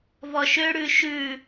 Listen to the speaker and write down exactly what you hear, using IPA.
v ɔ ʃ ø ɽ ʉ ʃ ʉ

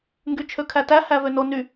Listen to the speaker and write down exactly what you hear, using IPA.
ŋ ɡ y t͡ʃʰ ø kʰ æ t æ h æ v ø n o n y

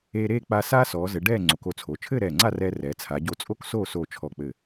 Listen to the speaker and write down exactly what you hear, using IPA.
eː˧ ɾ eː˥˧ k͡p a˧ s aː˥ s ɔː˩˧ z ɘ˩˧ ɖ ɛː˥˧ ŋ͡ǀ o˩˧ k o˧ t͡sʰ o˩˧ t͡ʃʰ ɘː˥˧ ɾ ɛː˧˩ ŋ͡ǀ a˥˧ r ɛː˧ r ɛː˩˧ t͡sʰ a˩˧ ɟ o˧ t͡sʼ o˥ k s oː˥˧ s oː˧˩ t͡ʃʰ ɔ˧˩ k͡p ɘ˧˩

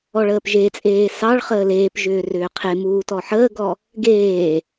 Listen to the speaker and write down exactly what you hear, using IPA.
ɔ ɭ əː p ʒ e t͡sʼ eː s ɑ ɭ χ əː l eː p ʒ ʏː r ʏː qʰ e m uː t ɔ ħ əː ɡ ɔ | ɡ eː

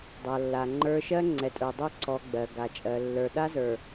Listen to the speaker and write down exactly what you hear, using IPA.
dˤ a˨ lː a˨ ŋ͡ǃ ə˞˦ ʃ ɜ˦ ŋ͡ǀ ɛ˨ tʼ ə˞˨ dˤ o˦ ǀ ɔ˨ ɡ͡b ɜ˨ ɡ a˨ t͡ʃʼ ɜ˨ lː ə˞˨ ɗ a˦ z ə˞˨

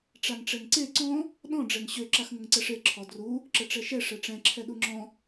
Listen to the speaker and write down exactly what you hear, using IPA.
ʈ͡ʂ a ŋ ʈ͡ʂ ɛ ŋ ǀ e ǀ ɔ̃ | ɗ ɔ̃ ɖ͡ʐ ɛ ŋ ɕ ø ǁ a x ŋ ə ŋ ǀ ɛ ʂ e ǁʰ ɔ d r u | ǁ ə ʈ͡ʂ ɛ ʃ ɛ ʂ ɛ ʈ͡ʂ ɛ̃ ǁʰ ɛ ɗ u ŋ͡ǁ ɔ̃

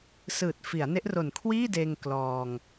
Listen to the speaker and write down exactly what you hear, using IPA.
s ɯː˨˩ t̚ f i˩˦ a̯ n e˦˥ ʔ r o˨˩ n kʰ w iː˥˩ d eː˧ ŋ k l ɔː˧ ŋ

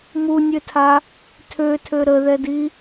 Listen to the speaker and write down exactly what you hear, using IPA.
m u nʲ ø tʰ a | tʰ ø tʰ ø ɾ ə ð ɛ d i

